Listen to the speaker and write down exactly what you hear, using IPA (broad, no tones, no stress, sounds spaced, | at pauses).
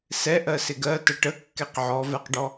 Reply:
s ɛ ʔ ɜ s ɪ ɡ ɜ t ə ʈ ə kː ɛ q ʕ ɔ v ɛ q ɖ ɔ